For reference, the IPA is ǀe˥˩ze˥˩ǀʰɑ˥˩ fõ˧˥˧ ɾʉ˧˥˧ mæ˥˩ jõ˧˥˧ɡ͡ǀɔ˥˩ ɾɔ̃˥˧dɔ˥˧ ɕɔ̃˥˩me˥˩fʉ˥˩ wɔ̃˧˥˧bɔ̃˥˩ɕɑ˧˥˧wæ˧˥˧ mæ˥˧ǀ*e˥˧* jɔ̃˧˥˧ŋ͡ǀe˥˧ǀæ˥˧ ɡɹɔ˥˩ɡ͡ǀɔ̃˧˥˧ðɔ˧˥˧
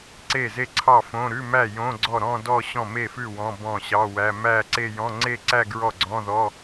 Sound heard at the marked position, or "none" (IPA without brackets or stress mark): e˥˧